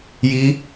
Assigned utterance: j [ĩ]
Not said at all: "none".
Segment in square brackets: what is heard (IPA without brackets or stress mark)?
i